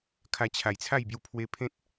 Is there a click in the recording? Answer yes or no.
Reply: no